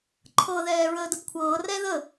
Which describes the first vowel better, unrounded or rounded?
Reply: unrounded